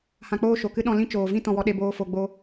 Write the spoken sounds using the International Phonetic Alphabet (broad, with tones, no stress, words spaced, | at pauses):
hã˧k͡poː˦ʃo˨kɨ˦ ɗɔ̃˧lĩ˦t͡ʃoː˨vĩ˦ tɔ̃˧wɔ˧ ɗe˧boː˧ fo˧ɡ͡bo˦